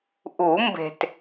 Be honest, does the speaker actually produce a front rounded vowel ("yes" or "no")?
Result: no